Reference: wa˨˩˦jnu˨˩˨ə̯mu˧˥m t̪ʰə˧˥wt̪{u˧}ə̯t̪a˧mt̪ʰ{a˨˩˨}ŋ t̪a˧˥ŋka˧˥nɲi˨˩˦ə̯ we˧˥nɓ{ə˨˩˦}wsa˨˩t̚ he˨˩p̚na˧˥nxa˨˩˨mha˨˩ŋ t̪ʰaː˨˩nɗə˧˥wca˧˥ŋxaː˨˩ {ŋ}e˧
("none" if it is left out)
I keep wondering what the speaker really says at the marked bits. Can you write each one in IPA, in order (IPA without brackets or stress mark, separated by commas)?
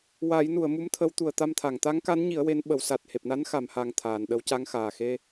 u˨˩˨, a˨˩˨, ə˨˩˦, x